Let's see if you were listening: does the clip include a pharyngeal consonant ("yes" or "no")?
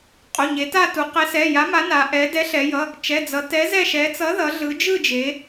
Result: no